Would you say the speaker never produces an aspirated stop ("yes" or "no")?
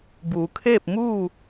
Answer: no